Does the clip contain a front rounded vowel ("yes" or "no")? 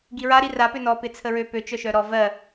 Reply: yes